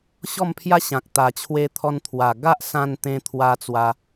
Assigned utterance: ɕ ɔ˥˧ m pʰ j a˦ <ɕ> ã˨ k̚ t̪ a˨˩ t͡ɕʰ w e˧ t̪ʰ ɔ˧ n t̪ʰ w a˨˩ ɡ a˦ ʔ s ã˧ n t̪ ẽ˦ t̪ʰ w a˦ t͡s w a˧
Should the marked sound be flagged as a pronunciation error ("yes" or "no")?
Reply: no